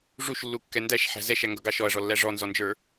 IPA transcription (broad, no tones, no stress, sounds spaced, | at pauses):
ʐ u ʃ lː u kː ɛ n d æ ʃ ħ æ̤ z ɛ ʃ æ ŋ ɡ ʌ ɡ ɑ ʃ ɔ ɐ̯ ʐ ɔ lː æ ʐ ɔ n z ɔ n d͡ʒ ə˞